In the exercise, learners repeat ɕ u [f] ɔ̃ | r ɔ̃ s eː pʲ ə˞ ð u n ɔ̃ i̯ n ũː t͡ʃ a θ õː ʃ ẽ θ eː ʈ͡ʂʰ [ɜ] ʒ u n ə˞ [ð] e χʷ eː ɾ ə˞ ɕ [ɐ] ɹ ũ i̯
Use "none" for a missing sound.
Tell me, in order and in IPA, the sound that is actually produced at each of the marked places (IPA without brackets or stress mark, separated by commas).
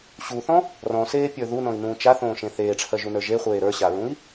θ, ɜ, ʒ, a